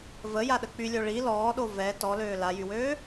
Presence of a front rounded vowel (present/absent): present